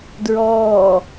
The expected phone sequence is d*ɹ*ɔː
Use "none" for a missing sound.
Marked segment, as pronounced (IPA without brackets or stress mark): ɹ